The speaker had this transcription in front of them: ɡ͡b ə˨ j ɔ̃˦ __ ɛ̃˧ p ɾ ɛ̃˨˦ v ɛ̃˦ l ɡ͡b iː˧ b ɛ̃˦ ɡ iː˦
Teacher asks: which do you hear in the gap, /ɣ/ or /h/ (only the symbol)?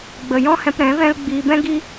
h